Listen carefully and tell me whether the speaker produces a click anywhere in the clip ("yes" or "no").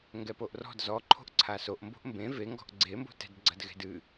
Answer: yes